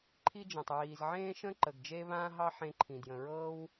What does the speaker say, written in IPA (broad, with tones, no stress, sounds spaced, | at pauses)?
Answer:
ǃʰ i˥ d͡ʒ ə̃ː˩ tˤ ɹ iː˩ z ʕ ẽː˥ ʃ ə̃˥ ǃ ə˩ ɡ d͡ʒ e˥ β ãː˥ ɦ ɑ˥ ħ ẽ˧ ǃʰ ĩ˩ d j ə̃˩ ɹ ɤː˥ w